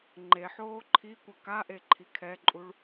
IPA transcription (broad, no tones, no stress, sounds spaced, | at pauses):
ŋ͡ǃ e ħ oː ǃʰ i kʷ ɐ k a ʔ e ǃʰ i kʰ ɛ ǃʼ u ɭ